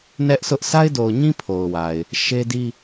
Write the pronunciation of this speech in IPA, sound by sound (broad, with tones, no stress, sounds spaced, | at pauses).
n ɛ˦ ʔ sʰ ʊ˦ ʔ s a˦ ɪ̯ d o˨ ʊ̯ ɲ ĩ˦ pʰ o˨ ʊ̯ w a˨ ɪ̯ | ʃ e˦ d i˦